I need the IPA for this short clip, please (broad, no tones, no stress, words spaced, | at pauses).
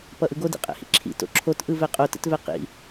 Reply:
pʌʔɯɡo dḭqʼɛ̰hḭǁʰḭ to̰ǁʰot ʔɯvɛqʼo tə̰tvɛqḭ